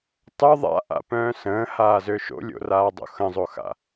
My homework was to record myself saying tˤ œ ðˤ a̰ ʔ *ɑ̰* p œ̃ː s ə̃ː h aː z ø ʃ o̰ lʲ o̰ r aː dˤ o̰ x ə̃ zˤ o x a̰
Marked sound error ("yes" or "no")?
yes